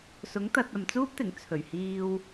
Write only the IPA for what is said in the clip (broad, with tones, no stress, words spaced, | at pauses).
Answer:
sʊ˨˥ŋ t̪ɐ˨t̚ ɐ˨mt͡suː˥p̚t̪ɪ˨˩ŋ t͡sʰɵ˨˩ɥhiː˧w